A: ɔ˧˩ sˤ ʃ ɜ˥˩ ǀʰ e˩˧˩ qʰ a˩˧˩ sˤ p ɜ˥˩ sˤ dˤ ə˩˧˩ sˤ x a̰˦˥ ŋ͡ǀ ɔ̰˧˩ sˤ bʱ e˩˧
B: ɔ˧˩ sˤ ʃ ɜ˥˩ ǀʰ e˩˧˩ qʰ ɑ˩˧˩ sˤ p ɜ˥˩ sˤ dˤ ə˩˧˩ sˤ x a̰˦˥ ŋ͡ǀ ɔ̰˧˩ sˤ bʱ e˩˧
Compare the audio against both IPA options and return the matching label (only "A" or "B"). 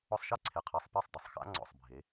A